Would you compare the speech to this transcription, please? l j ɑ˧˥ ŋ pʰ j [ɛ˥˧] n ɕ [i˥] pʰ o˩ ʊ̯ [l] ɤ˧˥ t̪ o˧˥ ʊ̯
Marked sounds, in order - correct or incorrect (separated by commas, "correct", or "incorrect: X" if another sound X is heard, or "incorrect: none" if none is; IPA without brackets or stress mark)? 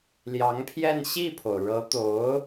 correct, incorrect: i˥˩, incorrect: ɻ